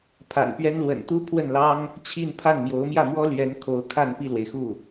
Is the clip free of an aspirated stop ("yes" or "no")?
no